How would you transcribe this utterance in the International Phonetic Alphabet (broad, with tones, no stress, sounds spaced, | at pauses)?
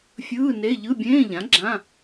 fʲ ɯː˧˥˧ n e˧˥˧ ʎ ɯ˧˥˧ bʲ ẽː˧˥˧ ʎ ã˩˥ ɡ͡ǁ ã˧˥˧